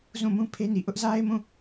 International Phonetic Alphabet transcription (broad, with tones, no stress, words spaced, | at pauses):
zũ˦˨mũ˦ pʰe˦ni˨ ʔʊ˦ʔza˦ɪ̯mũ˦˨